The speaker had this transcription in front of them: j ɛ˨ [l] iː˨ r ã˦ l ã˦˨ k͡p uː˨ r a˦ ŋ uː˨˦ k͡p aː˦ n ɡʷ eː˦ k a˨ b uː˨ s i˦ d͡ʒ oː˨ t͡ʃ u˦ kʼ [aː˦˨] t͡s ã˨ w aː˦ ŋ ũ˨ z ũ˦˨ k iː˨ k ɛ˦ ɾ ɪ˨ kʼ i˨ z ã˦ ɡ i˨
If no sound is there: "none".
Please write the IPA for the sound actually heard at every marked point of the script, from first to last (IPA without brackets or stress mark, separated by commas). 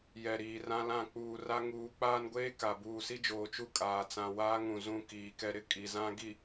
ɾ, aː˨